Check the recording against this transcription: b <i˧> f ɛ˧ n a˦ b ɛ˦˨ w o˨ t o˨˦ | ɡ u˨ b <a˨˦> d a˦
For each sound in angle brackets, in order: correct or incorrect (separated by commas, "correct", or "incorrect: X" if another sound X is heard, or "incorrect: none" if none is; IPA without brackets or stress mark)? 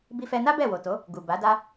correct, correct